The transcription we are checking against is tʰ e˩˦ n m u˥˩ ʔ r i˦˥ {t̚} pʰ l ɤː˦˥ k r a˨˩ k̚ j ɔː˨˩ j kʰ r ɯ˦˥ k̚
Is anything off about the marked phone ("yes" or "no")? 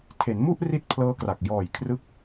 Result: no